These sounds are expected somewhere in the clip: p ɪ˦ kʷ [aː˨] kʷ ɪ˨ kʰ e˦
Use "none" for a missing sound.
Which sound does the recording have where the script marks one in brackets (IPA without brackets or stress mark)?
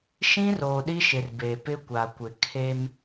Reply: a˨